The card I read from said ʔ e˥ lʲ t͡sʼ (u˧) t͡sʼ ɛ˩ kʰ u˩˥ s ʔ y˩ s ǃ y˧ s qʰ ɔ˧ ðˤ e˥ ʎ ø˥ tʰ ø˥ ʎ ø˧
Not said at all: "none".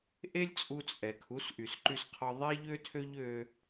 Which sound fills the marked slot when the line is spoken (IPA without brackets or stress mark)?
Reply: u˧